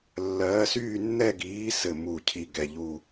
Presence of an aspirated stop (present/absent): present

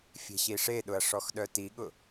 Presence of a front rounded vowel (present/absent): present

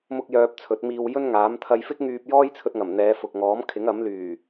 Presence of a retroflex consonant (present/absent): absent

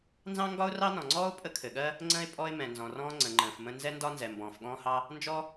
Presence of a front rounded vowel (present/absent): absent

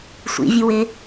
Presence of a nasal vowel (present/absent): absent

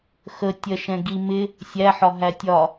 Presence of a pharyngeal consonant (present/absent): present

